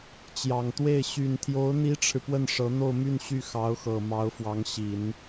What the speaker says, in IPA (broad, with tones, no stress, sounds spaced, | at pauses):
t͡ɕ j ɑ˨˩ ŋ t̪ w e˥˩ ɪ̯ ɕ y˨˩ n t̪ʰ j o˧˥ ʊ̯ n̪ i˥ ʈ͡ʂʰ ɻ̩˨ p w ə˥˩ n ʂ ɤ˧˥ n̪ o˥˧ ʊ̯ m y˥˧ n ɕ y˥˩ x ɑ˧˥ ʊ̯ x ɤ˨˩ m ɑ˧˥ ʊ̯ f w ɑ˧˥ ŋ ɕ i˨˩˦ n